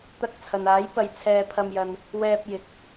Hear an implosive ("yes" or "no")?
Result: no